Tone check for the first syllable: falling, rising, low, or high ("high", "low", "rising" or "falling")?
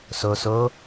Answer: low